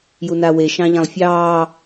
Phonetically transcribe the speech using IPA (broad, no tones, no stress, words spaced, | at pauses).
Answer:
junawe ʃɑ̃ʎãlˠfʲɑː